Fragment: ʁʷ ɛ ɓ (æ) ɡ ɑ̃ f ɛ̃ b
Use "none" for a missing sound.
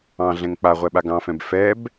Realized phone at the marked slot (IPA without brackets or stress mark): a